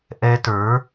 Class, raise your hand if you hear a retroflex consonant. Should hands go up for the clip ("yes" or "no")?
no